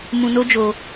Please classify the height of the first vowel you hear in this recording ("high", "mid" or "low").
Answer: high